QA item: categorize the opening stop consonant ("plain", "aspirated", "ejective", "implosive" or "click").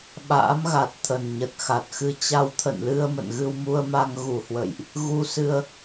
implosive